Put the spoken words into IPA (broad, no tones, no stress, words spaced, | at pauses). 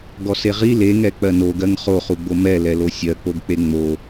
ɡɔseʁi leŋɛ k͡pɜnoɡɜŋ χoχuɡ͡bo mɛlɛlo sʲɜk͡poɡk͡pe ŋ͡mo